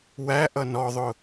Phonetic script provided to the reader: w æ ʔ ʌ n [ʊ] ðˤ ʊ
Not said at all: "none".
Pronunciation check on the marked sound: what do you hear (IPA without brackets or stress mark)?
ɔ